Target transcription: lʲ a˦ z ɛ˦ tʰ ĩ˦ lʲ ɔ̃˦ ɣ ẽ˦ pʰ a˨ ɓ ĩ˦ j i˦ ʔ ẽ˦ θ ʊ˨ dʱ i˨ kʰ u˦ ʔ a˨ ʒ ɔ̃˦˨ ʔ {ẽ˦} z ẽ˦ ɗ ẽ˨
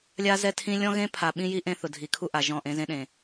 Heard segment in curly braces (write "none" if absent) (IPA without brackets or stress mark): ẽ˦